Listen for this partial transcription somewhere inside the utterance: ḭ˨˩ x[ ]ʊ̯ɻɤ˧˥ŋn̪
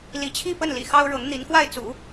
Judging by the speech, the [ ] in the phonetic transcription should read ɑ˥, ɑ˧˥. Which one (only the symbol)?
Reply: ɑ˥